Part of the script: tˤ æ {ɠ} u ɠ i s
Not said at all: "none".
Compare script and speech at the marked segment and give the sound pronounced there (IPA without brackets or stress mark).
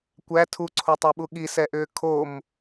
ɓ